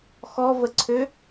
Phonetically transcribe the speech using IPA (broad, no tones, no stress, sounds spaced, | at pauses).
x ɔ v ə ǀʰ ø